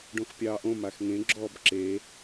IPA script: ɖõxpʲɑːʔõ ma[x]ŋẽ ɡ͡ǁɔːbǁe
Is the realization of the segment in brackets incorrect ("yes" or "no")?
no